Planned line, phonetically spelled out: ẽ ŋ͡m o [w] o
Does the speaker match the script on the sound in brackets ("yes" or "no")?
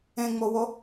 yes